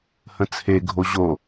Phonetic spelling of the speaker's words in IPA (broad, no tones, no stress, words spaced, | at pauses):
hə̃t͡sʰe ɡʱoʑo